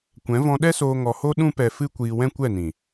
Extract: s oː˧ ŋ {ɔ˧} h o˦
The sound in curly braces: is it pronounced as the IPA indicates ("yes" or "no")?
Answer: yes